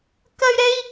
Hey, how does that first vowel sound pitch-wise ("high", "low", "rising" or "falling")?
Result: high